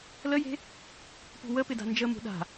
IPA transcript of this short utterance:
l ə j e̤ | p ṳ w ə p ɪ d a̤ n d͡ʒ ə m ṳ ɗ a̤

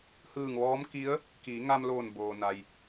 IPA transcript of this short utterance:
h ɯː˧˩ ŋ ʋ ɔː˧˥ m k i˧˥ ə̯ | k iː˩˧ ŋ a˧ m l oː˧˩ n b oː˩ n a˩ j

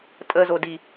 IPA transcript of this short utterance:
tʼ ə z o d i

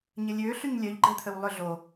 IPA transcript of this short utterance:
ɲ ə lʲ ø ɬ y ɲ lʲ œ ʎ ɡ͡ǃ ɛ t̪ʰ ə w lˠ ʏ ɮ o

